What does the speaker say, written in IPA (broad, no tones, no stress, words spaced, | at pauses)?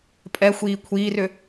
pʼɛxʷiː kʷʰiːrʏ